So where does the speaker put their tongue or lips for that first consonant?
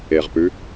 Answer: uvula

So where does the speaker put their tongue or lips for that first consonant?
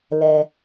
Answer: tongue tip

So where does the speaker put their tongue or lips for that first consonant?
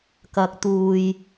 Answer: velum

